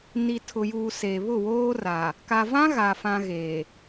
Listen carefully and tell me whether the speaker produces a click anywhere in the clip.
no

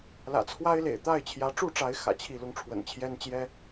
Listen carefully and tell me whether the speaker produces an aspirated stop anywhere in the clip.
yes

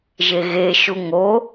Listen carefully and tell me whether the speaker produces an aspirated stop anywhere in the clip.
no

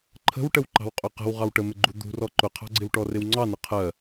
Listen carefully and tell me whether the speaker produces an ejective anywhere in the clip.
yes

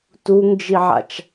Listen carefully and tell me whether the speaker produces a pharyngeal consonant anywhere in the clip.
yes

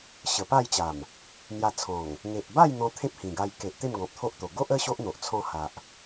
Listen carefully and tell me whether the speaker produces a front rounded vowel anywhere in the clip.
no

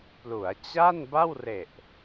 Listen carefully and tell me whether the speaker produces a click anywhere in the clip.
no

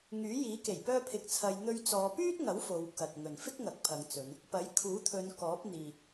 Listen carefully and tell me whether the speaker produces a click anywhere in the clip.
no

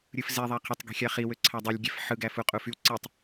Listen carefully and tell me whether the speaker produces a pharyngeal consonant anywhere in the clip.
yes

